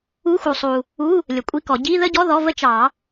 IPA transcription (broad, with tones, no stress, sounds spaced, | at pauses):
u˧˥˧ x u˨ sˤ u˨ | u˧˥˧ | lʲ ə˨ kʷʼ i˧˥˧ k ɔ˨˩˦ ɟ i˧˥˧ ð ə˥˧ ɟ ɔ˧˥˧ ð ɔ˧˥˧ v ə˥˧ t͡ʃ ɑ˨˩˦